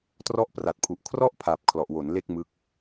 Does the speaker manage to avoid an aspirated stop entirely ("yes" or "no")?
no